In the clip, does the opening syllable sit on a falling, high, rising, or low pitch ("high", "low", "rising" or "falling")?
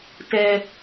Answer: low